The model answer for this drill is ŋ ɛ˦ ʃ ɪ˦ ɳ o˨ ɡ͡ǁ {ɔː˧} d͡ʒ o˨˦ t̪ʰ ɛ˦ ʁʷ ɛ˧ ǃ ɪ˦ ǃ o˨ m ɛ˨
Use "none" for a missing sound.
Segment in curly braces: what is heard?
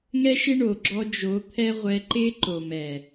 ɔ˧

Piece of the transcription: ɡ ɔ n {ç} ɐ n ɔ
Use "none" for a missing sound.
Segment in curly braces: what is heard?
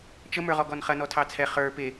χ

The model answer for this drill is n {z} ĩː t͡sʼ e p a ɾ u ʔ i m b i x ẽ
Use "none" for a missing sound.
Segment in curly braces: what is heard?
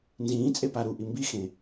z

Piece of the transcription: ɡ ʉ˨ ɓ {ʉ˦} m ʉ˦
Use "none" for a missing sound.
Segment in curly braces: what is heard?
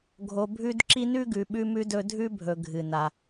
ʉ˦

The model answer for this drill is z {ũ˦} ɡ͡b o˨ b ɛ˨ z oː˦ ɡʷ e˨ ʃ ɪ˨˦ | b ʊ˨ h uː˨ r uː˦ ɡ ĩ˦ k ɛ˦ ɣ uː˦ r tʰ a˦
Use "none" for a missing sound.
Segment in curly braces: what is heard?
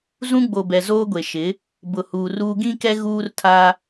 ũ˦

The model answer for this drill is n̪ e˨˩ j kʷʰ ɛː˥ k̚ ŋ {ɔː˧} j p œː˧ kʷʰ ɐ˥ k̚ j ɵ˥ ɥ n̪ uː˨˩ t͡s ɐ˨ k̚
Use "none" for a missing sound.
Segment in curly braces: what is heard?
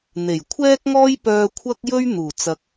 ɔː˥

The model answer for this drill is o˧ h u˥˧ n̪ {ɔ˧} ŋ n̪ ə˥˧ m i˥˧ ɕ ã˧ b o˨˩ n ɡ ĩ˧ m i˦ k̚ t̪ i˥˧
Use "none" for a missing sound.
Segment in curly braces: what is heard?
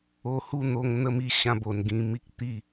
o˧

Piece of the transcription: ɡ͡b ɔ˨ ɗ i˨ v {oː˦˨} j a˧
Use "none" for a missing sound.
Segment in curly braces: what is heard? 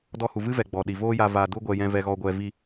oː˦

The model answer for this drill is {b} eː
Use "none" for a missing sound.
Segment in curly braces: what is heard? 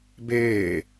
b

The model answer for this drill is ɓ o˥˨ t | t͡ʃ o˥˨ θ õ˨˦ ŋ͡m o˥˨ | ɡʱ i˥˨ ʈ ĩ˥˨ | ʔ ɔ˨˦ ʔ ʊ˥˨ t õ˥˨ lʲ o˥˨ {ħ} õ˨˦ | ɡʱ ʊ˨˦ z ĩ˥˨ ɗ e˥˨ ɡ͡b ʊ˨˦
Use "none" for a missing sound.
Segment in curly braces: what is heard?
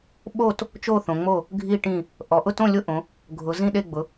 ʔ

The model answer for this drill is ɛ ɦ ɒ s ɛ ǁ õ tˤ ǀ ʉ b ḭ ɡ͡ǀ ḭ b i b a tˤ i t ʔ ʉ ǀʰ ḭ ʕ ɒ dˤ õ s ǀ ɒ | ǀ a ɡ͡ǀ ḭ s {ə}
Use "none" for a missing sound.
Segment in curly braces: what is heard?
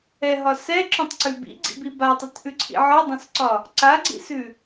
ʉ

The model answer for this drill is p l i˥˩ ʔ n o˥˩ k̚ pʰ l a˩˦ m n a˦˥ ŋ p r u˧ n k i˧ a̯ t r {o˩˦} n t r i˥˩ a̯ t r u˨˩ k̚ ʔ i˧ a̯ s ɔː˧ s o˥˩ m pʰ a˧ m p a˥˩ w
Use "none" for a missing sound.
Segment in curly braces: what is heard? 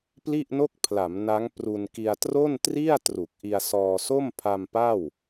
o˥˩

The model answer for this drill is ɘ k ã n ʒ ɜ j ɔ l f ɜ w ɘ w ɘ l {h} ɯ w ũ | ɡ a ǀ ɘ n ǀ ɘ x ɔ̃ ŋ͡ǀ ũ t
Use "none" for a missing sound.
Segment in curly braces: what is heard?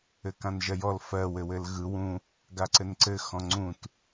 ɣ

